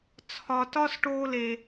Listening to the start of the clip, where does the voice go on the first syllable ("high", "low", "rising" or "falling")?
low